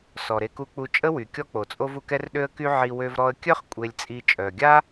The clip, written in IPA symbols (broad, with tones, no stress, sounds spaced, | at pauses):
s ɔ˩ ɾ e˧ k u˧ k͡p u˧ t͡ʃʼ ə˥ w y˩ kʲ ɔ˥ k͡p o˩ t͡sʼ o˥ v u˧ k ɛ˥ r ɗ ø˥ ə̯ k y˥ ʕ i˧ w ø˧ v ɾ ɔ˧ ə̯ kʲ œ˥ χ kʷʼ e˧ lʲ t͡sʼ i˧ t͡ʃʼ œ˩ ɡʲ a˥